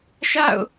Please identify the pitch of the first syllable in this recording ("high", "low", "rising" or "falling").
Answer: falling